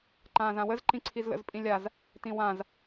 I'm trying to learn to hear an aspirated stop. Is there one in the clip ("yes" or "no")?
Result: yes